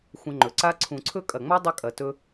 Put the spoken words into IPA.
xʷə̃˧ ŋ͡ǃɵ˨ǀa˦ ǀʰũ˨ǀʰɵ˦ kʼɐ˨ŋ͡ma˦ dˤə˦kʼɐ˨ tɵ˧

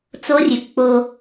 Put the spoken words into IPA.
t͡so˦rʲʉ˨kk͡po˦

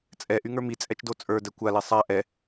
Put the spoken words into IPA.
t͡sʼɛʔyŋə˞ mit͡sʼɛt͡ʃdo t͡sʼə˞dɛ kʷale sˤa ʔɛ

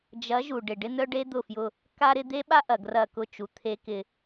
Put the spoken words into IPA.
d͡ʒɐ˨˦ ʒu˨ɖɪ˨ ɖɪ˦n̪œ˦ɖe˦ d̪ʊ˦˨fjʊ˦ | ka˦ɾɪ˦ d̪e˦ɓa˦ʔɐ˨ ɡrɐ˦˨kʊ˦t͡ʃu˨ t̪ʰe˦kɪ˦

